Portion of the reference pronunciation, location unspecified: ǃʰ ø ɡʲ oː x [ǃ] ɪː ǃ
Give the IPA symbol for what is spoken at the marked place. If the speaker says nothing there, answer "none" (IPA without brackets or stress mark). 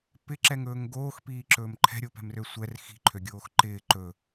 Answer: ǃ